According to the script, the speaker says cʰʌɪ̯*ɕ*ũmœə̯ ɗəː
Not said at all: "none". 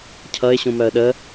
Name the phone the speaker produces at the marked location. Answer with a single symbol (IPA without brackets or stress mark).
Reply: ɕ